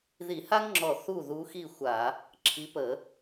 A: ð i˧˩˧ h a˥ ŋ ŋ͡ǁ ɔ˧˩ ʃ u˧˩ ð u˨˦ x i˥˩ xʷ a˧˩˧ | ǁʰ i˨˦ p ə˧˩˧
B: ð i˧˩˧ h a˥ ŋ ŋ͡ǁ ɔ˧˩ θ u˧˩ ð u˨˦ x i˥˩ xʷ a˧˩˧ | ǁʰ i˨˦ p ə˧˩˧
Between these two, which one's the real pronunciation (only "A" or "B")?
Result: B